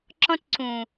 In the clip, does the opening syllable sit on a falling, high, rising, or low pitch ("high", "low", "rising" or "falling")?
high